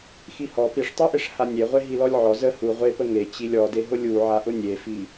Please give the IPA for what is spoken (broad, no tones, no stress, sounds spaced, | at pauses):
x i h ɔ p i ʂ tˤ i ʔ e ʂ h a nʲ e ʁʷ e ɦ i l ɔ lʲ ʕ ɔ z ə h u ʁʷ e p ə ŋ e t͡ɕ i lʲ ɔ d e ɦ ʊ lʲ u ʕ a ʔ ʊ nʲ e f i